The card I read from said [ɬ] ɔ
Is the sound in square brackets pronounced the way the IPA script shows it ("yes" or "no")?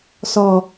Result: no